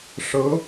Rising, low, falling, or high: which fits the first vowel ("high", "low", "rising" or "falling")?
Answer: rising